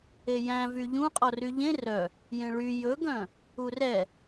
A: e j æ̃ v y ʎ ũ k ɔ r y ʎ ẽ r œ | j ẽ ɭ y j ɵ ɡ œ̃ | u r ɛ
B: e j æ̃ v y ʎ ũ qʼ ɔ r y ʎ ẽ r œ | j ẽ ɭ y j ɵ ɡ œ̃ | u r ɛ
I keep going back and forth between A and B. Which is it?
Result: B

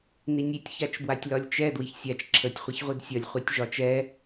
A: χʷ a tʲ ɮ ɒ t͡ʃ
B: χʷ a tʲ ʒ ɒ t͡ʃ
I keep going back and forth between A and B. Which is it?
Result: B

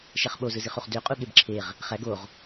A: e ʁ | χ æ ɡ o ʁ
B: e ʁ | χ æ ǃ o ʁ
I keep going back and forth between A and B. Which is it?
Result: A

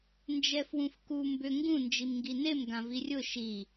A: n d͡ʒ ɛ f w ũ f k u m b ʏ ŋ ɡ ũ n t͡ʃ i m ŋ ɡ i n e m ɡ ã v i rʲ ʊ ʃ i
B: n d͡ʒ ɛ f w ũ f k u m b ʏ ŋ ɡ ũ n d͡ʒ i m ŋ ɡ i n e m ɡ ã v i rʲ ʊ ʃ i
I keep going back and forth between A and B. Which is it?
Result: B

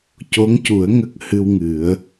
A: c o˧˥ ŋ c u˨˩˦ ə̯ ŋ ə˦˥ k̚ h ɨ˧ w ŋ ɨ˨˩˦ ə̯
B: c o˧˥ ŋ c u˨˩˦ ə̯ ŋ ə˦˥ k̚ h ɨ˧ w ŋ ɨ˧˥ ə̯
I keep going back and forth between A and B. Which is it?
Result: A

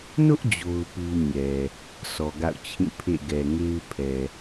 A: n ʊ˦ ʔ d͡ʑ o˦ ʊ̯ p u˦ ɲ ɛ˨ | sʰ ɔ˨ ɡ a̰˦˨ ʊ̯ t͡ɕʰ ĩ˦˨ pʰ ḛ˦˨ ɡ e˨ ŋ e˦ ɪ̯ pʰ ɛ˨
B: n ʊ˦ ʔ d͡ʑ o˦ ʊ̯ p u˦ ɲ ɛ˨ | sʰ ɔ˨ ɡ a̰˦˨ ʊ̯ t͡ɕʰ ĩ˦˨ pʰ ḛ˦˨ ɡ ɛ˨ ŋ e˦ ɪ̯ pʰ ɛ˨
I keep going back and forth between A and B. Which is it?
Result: B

